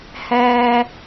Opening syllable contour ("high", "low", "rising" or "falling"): low